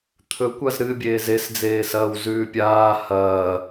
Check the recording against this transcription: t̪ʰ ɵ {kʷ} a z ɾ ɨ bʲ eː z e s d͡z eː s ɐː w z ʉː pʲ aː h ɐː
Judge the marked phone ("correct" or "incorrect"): correct